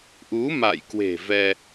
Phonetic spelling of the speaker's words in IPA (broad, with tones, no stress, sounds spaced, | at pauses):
ʔ u˨˦ m a̰˧˨ j k w e̤˨˩ v ɛ˧